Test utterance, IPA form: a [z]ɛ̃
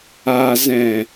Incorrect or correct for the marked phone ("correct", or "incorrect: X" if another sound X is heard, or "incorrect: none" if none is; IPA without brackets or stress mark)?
correct